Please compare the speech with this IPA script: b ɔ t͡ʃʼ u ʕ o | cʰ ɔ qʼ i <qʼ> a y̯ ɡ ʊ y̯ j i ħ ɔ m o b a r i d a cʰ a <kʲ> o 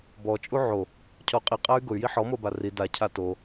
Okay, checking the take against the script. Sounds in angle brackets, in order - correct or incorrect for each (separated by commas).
correct, incorrect